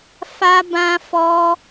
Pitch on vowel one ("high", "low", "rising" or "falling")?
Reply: high